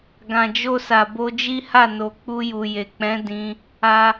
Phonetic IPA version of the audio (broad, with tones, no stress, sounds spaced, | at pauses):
ɡ ã˨ d͡ʒ o˧ s a˨ b o˧ d͡ʒ i˦ h a˦˨ n o˨ k͡p u˧ j u˨ j e˨ k͡p ɛ̃˨˦ d ĩ˧ | a˦